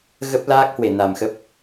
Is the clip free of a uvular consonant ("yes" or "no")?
yes